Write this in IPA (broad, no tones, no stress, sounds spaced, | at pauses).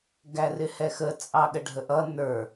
ɡ æ r ɪ h ɛ x ə t͡sʼ ɑ ɠ ə ɖʱ ə ʔ ʌ n ə˞